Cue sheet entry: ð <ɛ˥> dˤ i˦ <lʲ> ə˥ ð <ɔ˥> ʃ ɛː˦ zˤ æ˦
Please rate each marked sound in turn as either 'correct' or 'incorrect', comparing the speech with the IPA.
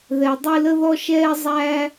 incorrect, incorrect, correct

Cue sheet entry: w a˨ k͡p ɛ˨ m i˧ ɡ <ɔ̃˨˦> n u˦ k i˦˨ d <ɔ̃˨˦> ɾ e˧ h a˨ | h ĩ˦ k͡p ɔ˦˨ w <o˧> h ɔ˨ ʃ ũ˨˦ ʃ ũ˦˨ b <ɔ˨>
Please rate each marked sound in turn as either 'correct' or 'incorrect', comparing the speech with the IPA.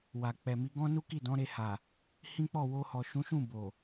incorrect, correct, correct, incorrect

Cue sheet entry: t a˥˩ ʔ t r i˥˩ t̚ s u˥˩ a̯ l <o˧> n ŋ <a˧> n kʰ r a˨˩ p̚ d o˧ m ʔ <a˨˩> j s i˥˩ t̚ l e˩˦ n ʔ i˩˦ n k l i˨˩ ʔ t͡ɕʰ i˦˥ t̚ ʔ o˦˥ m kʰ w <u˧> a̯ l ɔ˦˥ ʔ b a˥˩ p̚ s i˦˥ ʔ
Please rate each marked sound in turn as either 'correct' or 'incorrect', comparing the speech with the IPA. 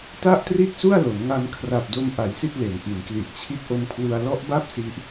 incorrect, correct, correct, correct

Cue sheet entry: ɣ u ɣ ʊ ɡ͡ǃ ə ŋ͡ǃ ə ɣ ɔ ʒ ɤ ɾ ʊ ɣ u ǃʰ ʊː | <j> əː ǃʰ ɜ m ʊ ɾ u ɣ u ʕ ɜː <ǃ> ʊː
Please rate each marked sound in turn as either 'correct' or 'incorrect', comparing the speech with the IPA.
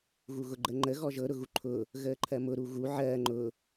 incorrect, incorrect

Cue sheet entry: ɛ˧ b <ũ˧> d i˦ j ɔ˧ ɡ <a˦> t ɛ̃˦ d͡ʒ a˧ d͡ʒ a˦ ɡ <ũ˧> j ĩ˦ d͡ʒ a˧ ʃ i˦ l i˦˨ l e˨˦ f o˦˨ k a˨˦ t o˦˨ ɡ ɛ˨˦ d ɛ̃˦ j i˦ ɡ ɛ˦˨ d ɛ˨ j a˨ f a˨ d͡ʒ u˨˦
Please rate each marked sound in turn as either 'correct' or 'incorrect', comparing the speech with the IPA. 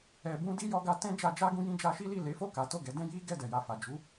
incorrect, correct, correct

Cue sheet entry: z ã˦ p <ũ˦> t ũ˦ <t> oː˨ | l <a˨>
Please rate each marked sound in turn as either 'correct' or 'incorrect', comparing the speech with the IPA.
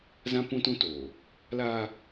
correct, correct, incorrect

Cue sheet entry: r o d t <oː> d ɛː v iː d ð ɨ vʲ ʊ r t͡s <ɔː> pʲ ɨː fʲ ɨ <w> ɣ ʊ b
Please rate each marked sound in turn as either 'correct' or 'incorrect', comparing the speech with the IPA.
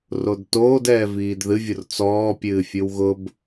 correct, correct, correct

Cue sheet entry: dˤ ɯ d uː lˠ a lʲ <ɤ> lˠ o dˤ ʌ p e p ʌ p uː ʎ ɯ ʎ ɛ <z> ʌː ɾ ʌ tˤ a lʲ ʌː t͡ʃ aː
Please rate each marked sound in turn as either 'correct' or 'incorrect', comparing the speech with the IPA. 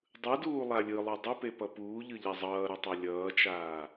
incorrect, incorrect

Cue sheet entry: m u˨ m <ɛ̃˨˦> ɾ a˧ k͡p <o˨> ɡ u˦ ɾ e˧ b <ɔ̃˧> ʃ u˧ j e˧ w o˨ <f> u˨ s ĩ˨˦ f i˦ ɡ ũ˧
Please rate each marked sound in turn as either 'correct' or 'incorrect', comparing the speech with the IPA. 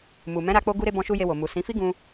correct, incorrect, correct, incorrect

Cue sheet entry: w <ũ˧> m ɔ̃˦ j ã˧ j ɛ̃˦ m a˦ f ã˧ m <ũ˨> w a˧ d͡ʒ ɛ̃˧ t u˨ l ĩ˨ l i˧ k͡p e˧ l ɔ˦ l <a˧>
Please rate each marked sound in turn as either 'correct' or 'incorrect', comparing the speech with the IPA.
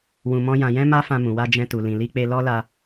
correct, correct, correct

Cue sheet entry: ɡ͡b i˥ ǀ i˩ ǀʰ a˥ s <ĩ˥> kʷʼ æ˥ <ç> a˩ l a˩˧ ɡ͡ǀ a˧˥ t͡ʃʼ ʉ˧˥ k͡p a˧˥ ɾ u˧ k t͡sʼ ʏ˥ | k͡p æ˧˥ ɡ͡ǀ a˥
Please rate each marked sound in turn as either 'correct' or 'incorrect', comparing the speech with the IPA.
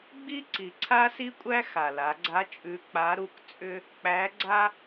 incorrect, incorrect

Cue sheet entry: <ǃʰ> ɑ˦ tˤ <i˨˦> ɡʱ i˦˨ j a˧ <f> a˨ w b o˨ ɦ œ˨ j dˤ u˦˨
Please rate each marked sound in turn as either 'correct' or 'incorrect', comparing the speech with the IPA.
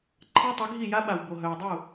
correct, correct, incorrect

